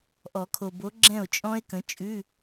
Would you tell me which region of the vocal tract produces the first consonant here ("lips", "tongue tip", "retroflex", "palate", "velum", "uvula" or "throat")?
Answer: throat